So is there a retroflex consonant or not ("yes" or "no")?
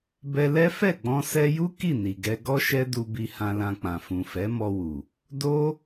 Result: no